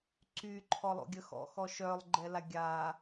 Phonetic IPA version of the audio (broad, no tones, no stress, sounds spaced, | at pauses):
ǀ y ǃʰ ɔ lˠ o̰ ɡʲ ə x ɔ̰ x ɔ ʃ œ lˠ ɡ͡ǃ ɛ l a ɡʲ a